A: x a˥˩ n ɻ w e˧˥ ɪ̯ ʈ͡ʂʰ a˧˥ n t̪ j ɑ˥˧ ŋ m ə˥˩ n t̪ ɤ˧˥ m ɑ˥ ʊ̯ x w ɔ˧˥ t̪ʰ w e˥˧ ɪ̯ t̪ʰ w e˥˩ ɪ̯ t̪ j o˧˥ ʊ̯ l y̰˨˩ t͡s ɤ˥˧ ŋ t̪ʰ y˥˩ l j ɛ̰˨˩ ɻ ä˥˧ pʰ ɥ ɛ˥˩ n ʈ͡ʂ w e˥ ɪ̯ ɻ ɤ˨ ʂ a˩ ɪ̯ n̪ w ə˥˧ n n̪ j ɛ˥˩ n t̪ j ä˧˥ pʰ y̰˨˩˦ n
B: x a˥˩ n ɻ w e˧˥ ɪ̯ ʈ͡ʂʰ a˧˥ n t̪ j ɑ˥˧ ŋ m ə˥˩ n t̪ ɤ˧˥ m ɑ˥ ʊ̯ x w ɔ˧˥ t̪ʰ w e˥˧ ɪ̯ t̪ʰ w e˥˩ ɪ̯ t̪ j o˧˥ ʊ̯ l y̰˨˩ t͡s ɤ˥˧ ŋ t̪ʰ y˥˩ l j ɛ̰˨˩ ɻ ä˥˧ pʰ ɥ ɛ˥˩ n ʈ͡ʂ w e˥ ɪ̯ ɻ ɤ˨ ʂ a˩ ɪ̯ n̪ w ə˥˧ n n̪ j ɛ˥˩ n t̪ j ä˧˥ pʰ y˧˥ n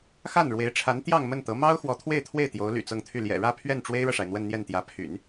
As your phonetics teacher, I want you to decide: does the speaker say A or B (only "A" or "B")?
A